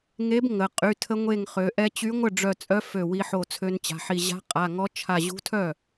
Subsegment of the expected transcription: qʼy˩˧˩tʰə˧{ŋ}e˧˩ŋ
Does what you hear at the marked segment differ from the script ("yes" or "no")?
yes